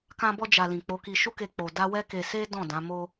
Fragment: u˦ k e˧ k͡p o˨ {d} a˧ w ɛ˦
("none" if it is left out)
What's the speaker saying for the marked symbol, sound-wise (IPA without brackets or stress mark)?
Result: d